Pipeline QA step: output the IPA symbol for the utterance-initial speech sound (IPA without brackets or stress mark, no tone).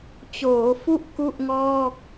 t͡ɕ